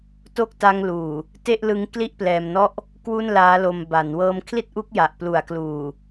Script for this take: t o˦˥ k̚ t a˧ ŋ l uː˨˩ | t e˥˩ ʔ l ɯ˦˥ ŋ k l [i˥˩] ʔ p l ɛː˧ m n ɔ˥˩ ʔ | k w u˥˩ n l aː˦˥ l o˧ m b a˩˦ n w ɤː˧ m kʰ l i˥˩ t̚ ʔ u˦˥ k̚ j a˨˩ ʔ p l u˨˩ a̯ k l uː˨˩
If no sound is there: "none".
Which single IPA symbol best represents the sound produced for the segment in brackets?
i˥˩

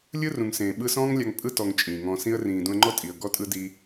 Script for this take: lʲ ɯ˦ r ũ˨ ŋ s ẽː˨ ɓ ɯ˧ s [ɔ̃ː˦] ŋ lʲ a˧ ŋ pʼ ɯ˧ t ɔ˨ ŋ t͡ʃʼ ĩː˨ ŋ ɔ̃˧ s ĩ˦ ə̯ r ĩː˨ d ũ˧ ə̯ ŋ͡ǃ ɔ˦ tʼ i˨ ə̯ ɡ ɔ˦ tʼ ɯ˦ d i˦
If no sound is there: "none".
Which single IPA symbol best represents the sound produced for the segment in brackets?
ɔ̃ː˦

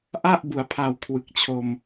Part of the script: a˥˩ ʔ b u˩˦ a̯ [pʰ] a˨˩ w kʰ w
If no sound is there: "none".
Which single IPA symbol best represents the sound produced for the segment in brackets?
pʰ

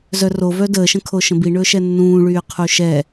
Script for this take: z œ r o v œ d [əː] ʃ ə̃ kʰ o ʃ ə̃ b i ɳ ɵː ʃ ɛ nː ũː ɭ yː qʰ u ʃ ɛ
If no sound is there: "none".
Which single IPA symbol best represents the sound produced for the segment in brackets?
əː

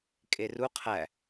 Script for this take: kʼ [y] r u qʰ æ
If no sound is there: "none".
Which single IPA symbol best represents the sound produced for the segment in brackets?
e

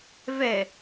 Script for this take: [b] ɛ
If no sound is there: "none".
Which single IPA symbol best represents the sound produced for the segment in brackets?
v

